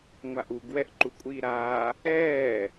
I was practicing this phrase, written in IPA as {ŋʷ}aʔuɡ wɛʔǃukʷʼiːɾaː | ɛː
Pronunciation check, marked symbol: correct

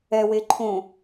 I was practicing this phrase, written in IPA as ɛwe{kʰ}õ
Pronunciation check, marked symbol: incorrect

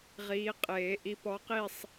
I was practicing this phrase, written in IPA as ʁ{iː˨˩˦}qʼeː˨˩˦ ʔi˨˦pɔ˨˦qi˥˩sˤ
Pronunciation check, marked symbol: incorrect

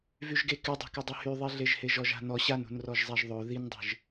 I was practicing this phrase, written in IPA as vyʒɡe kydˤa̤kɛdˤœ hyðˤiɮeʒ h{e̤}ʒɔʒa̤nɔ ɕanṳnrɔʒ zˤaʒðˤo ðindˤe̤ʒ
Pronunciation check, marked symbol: incorrect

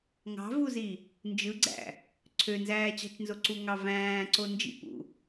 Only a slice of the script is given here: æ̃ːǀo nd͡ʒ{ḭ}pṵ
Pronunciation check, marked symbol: correct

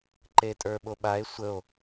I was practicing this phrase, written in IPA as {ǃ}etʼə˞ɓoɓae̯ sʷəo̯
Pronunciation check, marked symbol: correct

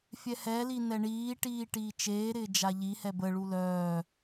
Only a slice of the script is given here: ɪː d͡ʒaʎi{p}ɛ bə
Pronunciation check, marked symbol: incorrect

